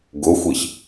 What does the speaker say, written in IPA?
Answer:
ɡʊxʷiç

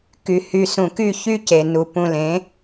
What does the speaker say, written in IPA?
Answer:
ky˨ hy˨sũ˨ky˦˨ çy˦ ce˨nu˨ pũ˨lẽ˨˦

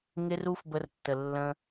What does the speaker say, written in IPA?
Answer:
ŋɪ˦ru˦fbə˧r tːə˨lːə̃˧

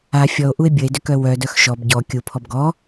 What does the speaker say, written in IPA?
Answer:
a fʲɔo̯ʔue̯ bʲəe̯dʏkœ wœdœx ʃɔb ɟɔ kʲupʰɔb ɡɔ

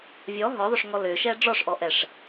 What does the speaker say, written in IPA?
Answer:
vʲɔ ɦɔðˤʏʂŋɔ lʏʃɛ ɖ͡ʐɔʂʔɔʔɛʂ

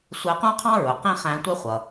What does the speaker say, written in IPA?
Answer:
sʷɛ˧˥qũ˥qʰɑ̃˥ɹʊ˩˧ qĩ˥ χæ̃˧˥tʷɛ˥χʷʌ˩

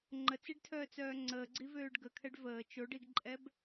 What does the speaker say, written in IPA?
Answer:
ŋ͡ǃət͡siɖtʰœːt͡sœː ŋ͡ǀəːɡ͡ǀivøːɖ ɡəkʰɛɖ vəː t͡ʃoɖiɡǃʼɛb

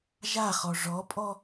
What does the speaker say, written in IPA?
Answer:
ʒaχɔ ʐɔpʼɔ

